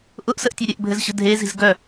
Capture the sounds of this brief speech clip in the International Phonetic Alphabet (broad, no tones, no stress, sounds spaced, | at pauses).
ʔ ʊ ʔ s ə ʔ tʲ œ ɾʲ ɘ ʔ bʱ ɘ z ɕ ə̤ dʱ e z i̤ z ɡ œ